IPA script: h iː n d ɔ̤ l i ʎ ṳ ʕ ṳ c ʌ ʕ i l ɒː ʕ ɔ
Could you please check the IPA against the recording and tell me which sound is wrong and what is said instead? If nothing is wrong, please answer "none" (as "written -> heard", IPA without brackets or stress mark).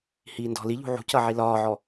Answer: none